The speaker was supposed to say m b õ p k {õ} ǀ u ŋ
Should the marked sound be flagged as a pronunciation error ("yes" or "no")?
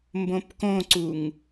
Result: no